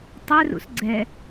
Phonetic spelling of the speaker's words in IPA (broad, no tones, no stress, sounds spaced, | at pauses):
tˤ ɛ r ṵ s ɡ͡ǀ ɛ